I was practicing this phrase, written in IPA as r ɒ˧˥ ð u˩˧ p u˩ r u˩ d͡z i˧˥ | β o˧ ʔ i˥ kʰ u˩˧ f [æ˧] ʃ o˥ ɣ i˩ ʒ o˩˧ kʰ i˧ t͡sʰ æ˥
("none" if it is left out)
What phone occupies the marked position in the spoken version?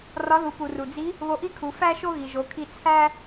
æ˥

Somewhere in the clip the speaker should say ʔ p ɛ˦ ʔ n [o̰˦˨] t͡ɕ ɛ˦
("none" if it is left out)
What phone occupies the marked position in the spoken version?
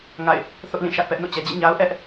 o̰˦˨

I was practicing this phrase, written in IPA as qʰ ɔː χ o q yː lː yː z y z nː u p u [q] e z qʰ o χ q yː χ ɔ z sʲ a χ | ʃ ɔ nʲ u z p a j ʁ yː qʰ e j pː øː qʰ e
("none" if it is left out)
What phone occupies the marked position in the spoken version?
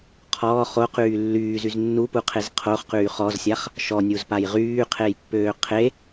qʰ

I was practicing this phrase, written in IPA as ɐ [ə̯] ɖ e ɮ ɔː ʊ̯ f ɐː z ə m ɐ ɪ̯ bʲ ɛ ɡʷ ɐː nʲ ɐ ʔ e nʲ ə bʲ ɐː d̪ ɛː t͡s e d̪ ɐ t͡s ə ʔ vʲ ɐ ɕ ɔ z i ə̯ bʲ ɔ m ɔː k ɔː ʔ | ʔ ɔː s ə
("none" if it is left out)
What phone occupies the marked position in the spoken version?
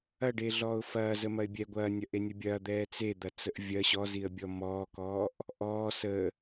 none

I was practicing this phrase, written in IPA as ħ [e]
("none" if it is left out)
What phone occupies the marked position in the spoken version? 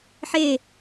e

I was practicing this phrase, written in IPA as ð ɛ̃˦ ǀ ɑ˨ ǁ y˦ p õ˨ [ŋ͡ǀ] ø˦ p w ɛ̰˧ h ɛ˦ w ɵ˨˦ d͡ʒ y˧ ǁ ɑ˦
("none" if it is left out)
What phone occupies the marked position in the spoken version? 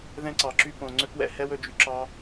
ŋ͡ǀ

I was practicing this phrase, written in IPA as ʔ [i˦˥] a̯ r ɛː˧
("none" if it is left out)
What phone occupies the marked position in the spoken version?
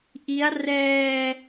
i˦˥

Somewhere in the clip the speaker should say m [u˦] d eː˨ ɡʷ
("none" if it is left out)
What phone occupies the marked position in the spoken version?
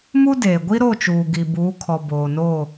u˦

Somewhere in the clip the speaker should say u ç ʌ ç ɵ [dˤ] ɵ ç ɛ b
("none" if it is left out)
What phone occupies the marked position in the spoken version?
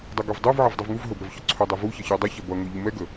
dˤ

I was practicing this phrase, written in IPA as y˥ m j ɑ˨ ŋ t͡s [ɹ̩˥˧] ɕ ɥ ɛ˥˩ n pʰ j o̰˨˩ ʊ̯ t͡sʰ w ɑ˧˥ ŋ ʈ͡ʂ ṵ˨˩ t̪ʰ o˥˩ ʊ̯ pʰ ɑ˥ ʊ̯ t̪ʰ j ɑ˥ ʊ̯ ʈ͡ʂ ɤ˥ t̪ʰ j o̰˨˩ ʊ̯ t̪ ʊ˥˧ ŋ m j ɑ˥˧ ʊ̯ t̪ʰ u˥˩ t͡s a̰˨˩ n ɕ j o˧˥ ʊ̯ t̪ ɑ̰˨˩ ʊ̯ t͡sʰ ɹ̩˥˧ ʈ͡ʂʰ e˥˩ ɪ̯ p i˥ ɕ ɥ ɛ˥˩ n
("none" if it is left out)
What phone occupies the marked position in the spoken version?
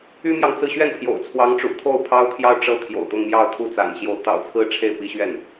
ɹ̩˥˧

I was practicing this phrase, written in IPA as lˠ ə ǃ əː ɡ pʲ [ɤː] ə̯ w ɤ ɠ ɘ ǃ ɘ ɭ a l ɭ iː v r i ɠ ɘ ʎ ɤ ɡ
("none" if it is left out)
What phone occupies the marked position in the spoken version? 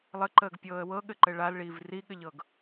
ɤː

